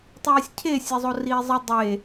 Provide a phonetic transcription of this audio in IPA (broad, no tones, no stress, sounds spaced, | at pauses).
tˤ iː sʲ cʰ e sʲ e zˤ o r iː zˤ ə dˤ e